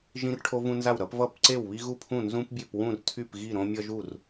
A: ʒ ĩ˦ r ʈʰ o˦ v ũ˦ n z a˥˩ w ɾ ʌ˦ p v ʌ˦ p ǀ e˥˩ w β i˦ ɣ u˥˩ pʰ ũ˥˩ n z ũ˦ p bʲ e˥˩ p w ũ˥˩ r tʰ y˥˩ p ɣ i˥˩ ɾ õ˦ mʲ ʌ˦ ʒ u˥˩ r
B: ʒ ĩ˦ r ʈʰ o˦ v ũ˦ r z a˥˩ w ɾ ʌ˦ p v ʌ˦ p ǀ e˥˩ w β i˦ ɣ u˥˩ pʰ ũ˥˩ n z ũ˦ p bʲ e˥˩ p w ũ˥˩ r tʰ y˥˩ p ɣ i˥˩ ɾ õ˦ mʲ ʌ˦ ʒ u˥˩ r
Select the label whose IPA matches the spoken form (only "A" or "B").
A